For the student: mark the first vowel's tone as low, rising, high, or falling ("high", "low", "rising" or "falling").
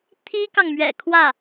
high